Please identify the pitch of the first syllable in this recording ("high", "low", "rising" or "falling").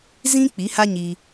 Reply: high